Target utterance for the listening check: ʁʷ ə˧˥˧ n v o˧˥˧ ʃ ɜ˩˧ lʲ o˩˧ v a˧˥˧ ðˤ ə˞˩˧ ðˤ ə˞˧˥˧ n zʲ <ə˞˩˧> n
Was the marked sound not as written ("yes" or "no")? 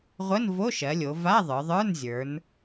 no